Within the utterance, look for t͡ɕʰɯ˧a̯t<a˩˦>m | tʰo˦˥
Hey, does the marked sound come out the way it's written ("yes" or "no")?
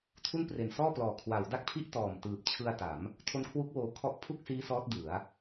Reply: yes